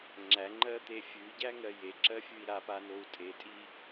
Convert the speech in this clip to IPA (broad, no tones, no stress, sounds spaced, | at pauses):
ŋ͡ǁ æ ŋ͡ǃ ɜ t̪ e fʲ ʉ ɟ æ ŋ ɜ j e ǁ ɜ fʲ ʉ i̯ ɾ a p a n o u̯ tʼ e tʼ i